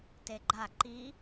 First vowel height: mid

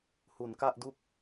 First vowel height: high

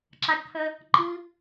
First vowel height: low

